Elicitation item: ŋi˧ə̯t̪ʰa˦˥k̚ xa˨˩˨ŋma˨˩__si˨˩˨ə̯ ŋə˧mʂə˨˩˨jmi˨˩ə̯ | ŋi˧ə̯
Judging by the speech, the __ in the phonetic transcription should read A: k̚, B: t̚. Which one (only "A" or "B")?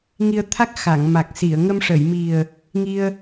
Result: A